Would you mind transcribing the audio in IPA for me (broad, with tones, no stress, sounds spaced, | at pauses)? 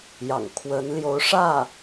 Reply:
j ɑ̰˨˩ ŋ kʰ w ə˧˥ n l j o˧˥ ʊ̯ ʂ ä˥˩